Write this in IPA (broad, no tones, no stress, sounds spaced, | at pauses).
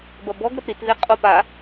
b ɐ b ɔ ɡ ɾ ɐ p ɾ i t ð e qʼ o p a